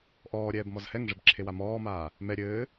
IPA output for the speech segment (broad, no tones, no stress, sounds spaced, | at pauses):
ʔ ɔː ɾʲ ɛː b m ɔ z h ɛ ŋ ʐ ɘ b ǁʰ e w a m ɔː m aː | m ɛ ɾʲ ɘː